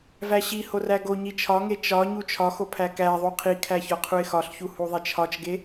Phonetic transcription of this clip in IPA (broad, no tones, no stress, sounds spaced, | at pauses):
v æ ɕ i h o r æ ɡ o ɲ i t͡ʃʰ ɒ ŋ e t͡ʃ ɒ ɲ u t͡ʃʰ ɒ x o pʰ æ k æ ðˤ u qʰ i kʰ æ ç ɒ qʰ u ɪ̯ x ɒ ɬ ç u h u ðˤ e t͡ʃʰ ɒ t͡ʃ ɡ e